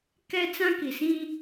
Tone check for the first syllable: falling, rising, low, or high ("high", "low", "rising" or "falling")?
high